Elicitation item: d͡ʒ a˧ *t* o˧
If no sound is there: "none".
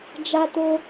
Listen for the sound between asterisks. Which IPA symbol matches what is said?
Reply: t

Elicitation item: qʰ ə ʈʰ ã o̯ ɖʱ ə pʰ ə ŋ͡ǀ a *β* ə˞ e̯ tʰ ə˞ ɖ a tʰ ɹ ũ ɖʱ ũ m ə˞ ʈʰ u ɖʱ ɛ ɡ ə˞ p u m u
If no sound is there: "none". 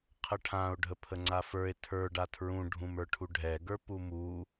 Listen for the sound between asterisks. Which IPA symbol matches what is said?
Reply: f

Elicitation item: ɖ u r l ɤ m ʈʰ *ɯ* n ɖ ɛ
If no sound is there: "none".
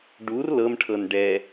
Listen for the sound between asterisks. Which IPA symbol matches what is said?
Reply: ɤ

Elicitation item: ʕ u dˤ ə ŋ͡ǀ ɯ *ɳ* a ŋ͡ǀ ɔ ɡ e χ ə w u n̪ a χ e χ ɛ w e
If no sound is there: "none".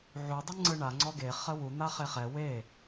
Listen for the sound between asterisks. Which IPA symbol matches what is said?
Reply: ɳ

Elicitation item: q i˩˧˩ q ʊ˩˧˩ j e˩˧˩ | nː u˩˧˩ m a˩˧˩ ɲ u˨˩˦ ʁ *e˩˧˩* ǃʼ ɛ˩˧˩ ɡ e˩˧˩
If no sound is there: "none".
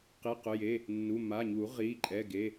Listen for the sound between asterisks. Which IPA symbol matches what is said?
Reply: i˩˧˩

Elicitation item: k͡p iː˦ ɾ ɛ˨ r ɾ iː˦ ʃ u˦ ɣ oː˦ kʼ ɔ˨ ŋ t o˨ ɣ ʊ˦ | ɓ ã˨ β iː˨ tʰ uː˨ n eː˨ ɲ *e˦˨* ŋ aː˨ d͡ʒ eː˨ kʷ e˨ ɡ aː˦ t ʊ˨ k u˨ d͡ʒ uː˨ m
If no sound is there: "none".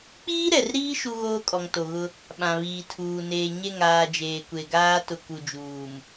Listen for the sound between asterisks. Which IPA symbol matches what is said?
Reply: e˦˨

